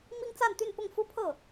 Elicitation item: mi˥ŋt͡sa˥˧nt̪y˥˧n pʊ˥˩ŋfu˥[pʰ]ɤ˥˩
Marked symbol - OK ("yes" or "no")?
yes